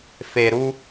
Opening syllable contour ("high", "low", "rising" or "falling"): low